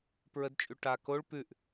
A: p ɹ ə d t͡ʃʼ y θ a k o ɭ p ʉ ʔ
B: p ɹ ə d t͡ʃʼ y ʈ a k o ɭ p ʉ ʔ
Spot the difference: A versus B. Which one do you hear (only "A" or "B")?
B